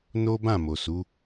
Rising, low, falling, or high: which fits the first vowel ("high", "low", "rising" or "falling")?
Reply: high